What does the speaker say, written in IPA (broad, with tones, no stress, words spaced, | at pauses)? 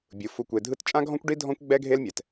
bʲɯ˩fu˨kʷe˨dʱɯ˦t t͡ʃʼã˥ɡʱɔ̃˥kʷɖi˥ dʱɔ̃˥kʷɡ͡bɛ˥ɡʱe˥lmʲɛ˩t